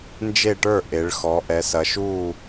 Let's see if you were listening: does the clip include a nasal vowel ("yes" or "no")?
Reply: no